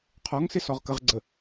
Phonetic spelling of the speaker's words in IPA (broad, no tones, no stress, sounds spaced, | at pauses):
qʰ ɔ ŋ s ɪ s ɔ ʁ k ə ʁ ɡ͡ǀ ə